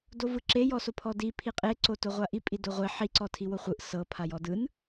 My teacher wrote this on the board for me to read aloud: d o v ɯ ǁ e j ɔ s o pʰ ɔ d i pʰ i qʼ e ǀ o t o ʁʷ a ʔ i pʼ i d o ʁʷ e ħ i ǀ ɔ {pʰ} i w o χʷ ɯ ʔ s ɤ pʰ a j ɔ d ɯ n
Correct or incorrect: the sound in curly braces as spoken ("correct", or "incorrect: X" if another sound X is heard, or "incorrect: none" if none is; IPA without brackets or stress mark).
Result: incorrect: tʰ